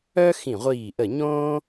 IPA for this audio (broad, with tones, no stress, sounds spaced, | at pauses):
œ˥ x ĩ˧˩ ʁʷ iː˧˩ ʔ ə˧˩ ɲ õː˥